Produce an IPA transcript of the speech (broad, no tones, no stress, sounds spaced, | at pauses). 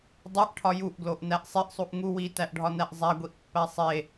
dˤ e ʔ ʈʰ ɒ j u ʔ ɡ l o ʔ n æ ʔ sˤ e ʔ sˤ u ʔ ŋ u w i t æ ʔ ɖʱ ɒ n æ ʔ zˤ æ ɡʷ i ʔ pː æ sˤ e